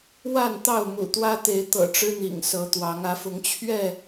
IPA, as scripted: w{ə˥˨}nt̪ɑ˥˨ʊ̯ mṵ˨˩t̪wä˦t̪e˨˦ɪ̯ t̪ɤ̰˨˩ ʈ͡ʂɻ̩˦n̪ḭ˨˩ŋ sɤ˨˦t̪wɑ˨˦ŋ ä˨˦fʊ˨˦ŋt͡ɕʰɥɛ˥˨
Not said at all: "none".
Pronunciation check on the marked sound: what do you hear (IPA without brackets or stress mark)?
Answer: a˥˨